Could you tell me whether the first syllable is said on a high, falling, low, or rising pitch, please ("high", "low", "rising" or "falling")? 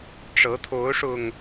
rising